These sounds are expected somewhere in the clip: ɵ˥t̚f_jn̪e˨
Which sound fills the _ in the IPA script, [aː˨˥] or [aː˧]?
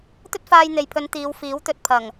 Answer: aː˧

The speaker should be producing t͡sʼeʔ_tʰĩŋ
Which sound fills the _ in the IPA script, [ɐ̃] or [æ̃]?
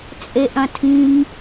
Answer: ɐ̃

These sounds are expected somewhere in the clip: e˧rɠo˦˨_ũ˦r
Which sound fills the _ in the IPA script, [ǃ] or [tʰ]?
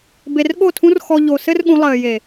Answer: tʰ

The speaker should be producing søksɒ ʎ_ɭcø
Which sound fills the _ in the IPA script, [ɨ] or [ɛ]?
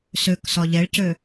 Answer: ɛ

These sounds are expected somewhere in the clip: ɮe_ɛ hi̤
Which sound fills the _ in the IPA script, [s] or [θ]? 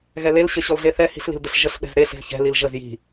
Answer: θ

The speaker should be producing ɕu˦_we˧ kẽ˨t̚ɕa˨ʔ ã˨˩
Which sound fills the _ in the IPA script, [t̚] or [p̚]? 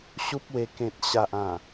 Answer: p̚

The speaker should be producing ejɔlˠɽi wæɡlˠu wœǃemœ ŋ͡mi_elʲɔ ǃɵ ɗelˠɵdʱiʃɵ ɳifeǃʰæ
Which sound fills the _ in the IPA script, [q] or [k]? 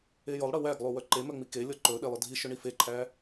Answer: k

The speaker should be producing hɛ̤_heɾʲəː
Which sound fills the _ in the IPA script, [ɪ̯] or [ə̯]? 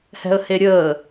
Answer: ə̯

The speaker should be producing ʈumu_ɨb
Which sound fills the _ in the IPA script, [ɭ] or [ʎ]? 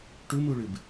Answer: ɭ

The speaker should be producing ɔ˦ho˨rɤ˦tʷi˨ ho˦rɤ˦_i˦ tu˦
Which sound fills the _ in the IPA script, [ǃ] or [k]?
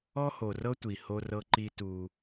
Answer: ǃ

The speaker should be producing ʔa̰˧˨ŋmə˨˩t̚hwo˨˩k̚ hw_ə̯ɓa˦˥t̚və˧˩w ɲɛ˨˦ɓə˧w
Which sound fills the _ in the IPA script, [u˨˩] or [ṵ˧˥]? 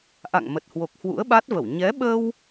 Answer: ṵ˧˥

